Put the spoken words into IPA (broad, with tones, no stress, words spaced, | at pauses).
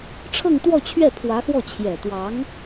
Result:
ʈ͡ʂʰɤ˥˧ŋt̪wɔ˥˧t͡ɕʰɥɛ˥˩ pʰwä˧˥xwɔ˥˩ t͡ɕʰjɛ˨˩t̪wɑ˧˥ŋ